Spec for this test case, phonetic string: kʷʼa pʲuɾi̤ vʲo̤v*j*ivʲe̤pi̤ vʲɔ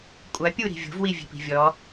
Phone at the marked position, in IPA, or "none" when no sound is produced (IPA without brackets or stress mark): w